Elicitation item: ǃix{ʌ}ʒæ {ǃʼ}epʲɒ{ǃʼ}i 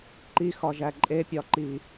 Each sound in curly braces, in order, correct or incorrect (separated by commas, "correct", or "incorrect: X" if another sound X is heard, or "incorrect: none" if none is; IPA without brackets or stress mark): incorrect: ɒ, correct, incorrect: ǃ